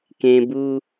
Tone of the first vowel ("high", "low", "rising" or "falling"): high